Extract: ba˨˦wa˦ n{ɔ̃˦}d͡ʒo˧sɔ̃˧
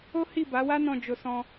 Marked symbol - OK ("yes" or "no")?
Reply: no